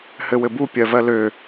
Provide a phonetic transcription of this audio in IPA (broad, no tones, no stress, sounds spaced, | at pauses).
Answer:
h ɘ w ɘ b u pʲ ɜ v ɜ l ø